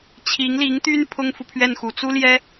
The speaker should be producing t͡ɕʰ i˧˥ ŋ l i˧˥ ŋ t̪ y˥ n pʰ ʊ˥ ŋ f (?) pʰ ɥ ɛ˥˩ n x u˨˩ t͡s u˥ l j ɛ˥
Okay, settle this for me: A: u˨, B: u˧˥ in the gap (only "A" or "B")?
A